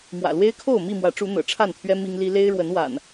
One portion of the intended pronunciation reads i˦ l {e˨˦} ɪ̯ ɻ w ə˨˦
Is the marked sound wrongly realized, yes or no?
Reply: yes